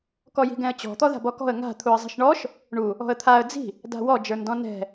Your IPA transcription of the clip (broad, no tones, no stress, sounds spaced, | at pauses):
k ɔ j i̤ ɡ ɛ̃ ə̯ t͡ɕ ɔ̤ t̪ ɔ ð a̤ b ɔ k ɔ̤ ə̯ ŋ a̤ t̪ʰ u ə̯ zˤ i̤ ʃ ɳ ɔ ʃ | ɳ u | ɔ̤ ə̯ t̪ʰ a ə̯ d͡z i̤ | d a̤ w ɔ d͡ʒ ə˞ n d ɔ̃ n ɛ̤